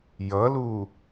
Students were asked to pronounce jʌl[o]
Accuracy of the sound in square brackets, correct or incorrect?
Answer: incorrect